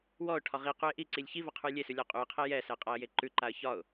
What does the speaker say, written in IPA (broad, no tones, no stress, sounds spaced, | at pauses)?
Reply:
w ɔ ʊ̯ ʈʰ ɒ ʁ i q u ɪ̯ ʔ i ǀ i lʲ ç i v a qʰ ʉ j lʲ e s ʉ lʲ ɒ qʼ ʉ ə̯ qʰ ɛ j ɛ s ɛ qʼ a ə̯ j e ǃ ʉ ǃ a ə̯ ç ɒ ʊ̯